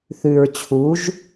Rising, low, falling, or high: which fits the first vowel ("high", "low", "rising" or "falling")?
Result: low